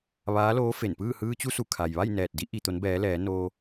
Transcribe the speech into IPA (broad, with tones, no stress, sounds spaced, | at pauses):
ʋ aː˧˥ l oː˧˥ f e˧˩ n p ɯː˥˨ h ɯː˧ t͡ɕ u˧ s u˧˩ kʰ a˩ j ʋ a˥˨ j n ɛː˧˩ t̚ d i˧˥ ʔ i˩ t̪ o˩˧ n b ɛː˩˧ l ɛː˩˧ n oː˧